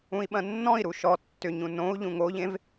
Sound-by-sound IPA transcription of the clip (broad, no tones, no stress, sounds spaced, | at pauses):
ũ i̯ ɓ ɐ̃ nː ɔ̃ i̯ ɾ u ʃ ɔ tː ʏ ɲ ũ n õ u̯ ʎ ũ ŋ o ʎ ẽ v